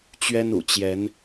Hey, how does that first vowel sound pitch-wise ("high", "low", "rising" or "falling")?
high